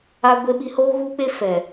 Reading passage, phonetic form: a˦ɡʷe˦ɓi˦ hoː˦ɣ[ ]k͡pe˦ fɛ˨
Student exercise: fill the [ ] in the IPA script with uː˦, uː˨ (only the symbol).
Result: uː˦